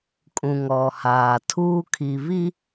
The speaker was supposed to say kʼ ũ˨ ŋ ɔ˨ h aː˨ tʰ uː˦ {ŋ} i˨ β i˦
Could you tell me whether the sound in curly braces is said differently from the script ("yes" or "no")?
yes